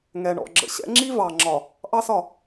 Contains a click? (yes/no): yes